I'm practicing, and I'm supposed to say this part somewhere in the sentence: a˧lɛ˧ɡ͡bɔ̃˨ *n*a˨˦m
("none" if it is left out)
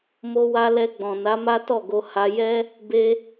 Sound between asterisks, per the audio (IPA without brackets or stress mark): n